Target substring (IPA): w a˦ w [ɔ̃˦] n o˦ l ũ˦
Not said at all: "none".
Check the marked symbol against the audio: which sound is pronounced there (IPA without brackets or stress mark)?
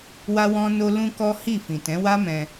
ɔ̃˦